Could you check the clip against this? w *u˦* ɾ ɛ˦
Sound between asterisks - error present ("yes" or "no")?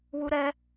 no